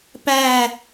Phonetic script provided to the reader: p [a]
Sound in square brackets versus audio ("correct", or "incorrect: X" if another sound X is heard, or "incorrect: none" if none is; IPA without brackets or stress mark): incorrect: æ